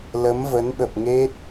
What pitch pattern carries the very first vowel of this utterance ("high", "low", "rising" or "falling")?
rising